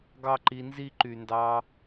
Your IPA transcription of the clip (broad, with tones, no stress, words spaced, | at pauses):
ɡɑ˦ǃi˧nzi˦ ǃy˨ndɑ˧